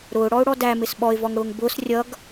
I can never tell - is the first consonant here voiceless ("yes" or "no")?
no